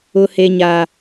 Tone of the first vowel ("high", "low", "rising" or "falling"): low